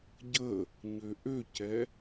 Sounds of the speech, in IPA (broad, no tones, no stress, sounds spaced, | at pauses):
ɟ ə | ɲ ø ʔ ø c ɛ